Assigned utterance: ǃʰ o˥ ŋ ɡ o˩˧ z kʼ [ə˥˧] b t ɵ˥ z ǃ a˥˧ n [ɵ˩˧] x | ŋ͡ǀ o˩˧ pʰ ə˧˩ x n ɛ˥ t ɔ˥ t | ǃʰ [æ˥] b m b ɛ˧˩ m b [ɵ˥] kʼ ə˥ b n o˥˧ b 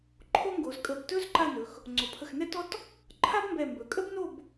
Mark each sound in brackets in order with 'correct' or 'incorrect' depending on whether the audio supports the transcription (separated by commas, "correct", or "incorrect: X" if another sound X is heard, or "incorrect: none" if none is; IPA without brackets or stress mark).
incorrect: ə˧˩, correct, incorrect: a˥, incorrect: ɵ˩˧